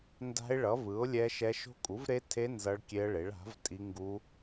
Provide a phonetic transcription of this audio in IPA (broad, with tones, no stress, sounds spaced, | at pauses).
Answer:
n d a̤˦˥ ɪ̯ ɭ ʌ˩˥ v ɯ˩˥ ʊ̯ lʲ ɛ˦˥ ʃ ɛ˦˥ ʃ o̤˦˥ kʼ u˩˥ v ɾ e˦˥ tʰ e˦˥ n z ʌ˦˥ ɭ kʲ e˦˥ ə̯ ɭ e˩˥ ɭ a̤˩˥ v tʼ i˦˥ ŋ ɡ u˦˥